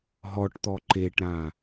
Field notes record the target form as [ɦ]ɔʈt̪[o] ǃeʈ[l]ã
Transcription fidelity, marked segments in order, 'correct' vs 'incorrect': correct, incorrect: ɔ, incorrect: ɾ

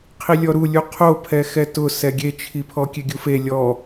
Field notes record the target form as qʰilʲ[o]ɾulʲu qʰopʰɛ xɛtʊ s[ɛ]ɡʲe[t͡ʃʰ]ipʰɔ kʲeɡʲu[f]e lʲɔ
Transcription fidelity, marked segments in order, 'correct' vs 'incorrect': incorrect: ɔ, correct, correct, correct

